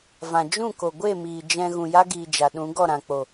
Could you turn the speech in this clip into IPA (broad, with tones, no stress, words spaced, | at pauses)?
vã˨ d͡ʒũ˦˨ko˨ɡʷe˦˨miː˨ d͡ʒɛ̃˧ ɣũ˨ja˦ɡiː˨ d͡ʒa˨ɗũ˨˦ɡɔ˦˨ɾã˨ k͡po˨